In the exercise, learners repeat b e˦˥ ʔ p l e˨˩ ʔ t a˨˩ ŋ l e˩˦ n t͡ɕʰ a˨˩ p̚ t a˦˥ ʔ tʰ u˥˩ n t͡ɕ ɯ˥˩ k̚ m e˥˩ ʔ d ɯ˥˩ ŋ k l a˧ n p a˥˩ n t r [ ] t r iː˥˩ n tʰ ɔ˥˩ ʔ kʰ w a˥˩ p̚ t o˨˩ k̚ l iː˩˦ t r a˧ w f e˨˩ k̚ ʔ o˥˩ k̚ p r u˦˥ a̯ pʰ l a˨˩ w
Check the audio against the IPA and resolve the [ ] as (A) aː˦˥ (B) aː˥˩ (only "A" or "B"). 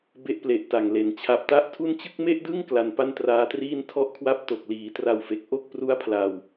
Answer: A